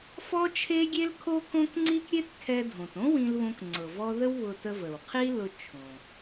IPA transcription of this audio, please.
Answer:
f ɔ˥ t͡ʃʰ e˥ ɡʲ e˥ l kʰ o˥ k õ˥ k ŋ͡ǀ i˥ k ɾʲ e˥ t kʰ ɛ˧ dʱ õ˩ t õ˥ w ĩ˧ l β õ˧ k ŋ͡ǀ ɤ˩ v ɔ˧ ð ə˥ w β ʊ˧ t ə˧ v ə˩ w qʰ i˥ l ʊ˧ t͡ʃʰ õ˩

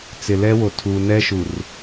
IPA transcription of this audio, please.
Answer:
t͡s ɪ˨ l ɛ˦ w o˨ tʰ u˨ n ɛ˦ ʃ u˨ r

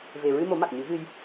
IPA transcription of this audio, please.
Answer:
v e˨˩ ɹ ɨ˧ m o˨˩˦ m a˨˩ k̚ ɲ ɨ˨˩˦ ɣ ɨ˧ j

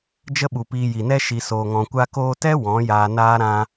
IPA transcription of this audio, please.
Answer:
d͡ʒ ə˦ ɓ u˨ p iː˧ j i˨ n ɛ˦ ʃ i˧ s oː˧ ŋ ɔ̃˧ kʷ a˧ k oː˧ t ɛ˦ w ɔ̃˨˦ j aː˧ n aː˦ ɾ ã˦

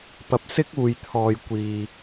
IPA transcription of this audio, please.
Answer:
p ɐ˧ p̚ s ɪ˥ k̚ uː˧ j t̪ʰ ɔː˧ j kʷ iː˧

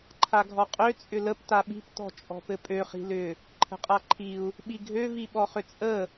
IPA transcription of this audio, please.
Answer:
ǃʰ a ɡʱ ɔ qʼ ø t͡sʼ ʏ l ə p t a ɓ i̤ p t ɔ̤ t͡ʃʼ ɔ̤ p ɘ pʼ ø χ i̤ l ʏ | ǃʰ ə̤ qʼ a ǃʰ i u̯ | ɓ i ɡʱ ø v i ɓ ɔ χ ʏ t͡sʼ ə

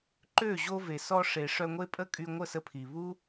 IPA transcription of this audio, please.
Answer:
ǃ ø˦˨ ʑ o˧ v e˨ s ɔ˧ ʂ e˨ ʂ œ˧ ŋʷ e˦ pʼ ə˦ kʼ y˧ ŋʷ ə˦˨ s ə˧ pʰ i˨ β u˦

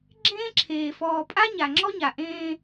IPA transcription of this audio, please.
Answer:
ɡ͡ǁ ẽː˦ ǁʰ eː˨ f ɔː˨ pʼ a˦ ɲ a˨ ŋ͡ǁ ɔ˦ ɲ a˨ ʔ ẽː˦

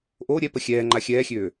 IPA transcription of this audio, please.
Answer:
ʔ o ɾʲ ɛ p ə xʲ ɛː ŋ͡ǃ a xʲ ɛː xʲ øː

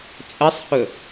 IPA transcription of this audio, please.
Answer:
t͡sʼ ə sˤ h ɵ

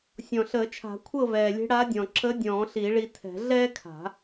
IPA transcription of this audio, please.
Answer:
sʲ ɔ̃˨˩ ɬ əː˨˩˦ t͡ʃʰ a̤˨˩˦ kʷʰ ɤ˥˨ v ɛː˨˩ lʲ e̤˧˥ ɽ a˧˥ dʲ ɔ̃˨˩ ǁ ə˧˥ dʲ ɔ̃ː˨˩˦ ɬ i˨˩˦ ɭ i˧ tʰ ɛ̤˨˩˦ ɮ ɛː˥ kʰ a̤˨˩˦

